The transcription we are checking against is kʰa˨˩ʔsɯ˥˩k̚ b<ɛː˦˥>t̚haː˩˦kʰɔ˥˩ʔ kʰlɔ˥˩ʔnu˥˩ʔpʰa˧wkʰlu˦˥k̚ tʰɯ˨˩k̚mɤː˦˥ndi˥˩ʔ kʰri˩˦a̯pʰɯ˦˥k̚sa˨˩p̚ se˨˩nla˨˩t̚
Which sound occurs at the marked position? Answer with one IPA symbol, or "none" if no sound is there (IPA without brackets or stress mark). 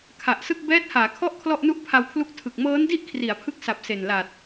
ɛː˦˥